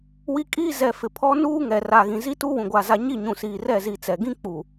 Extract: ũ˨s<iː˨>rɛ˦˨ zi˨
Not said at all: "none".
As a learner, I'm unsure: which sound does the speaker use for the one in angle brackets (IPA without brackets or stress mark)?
iː˨